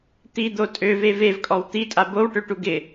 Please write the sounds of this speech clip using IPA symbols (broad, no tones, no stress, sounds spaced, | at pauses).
t̪ i d̪ o tʼ ø v e v e v kʼ ɔ w t̪ i tʼ a b o w ʈ ø ʈ u ɡ ɪ